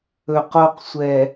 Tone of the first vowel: low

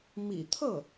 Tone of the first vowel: low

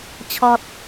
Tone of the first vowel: high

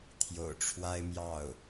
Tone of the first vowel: low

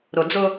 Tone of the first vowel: low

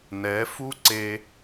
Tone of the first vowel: rising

